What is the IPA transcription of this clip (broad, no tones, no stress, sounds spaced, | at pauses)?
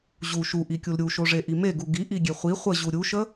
ʑ u ʃ u ʔ i kʲ u l ɾʲ u ʃ o ʐ e ʔ i m e ɡ u ɡ i ʔ i ɡʲ e χʷ i χʷ ə ʑ u ɾʲ u ʃ ə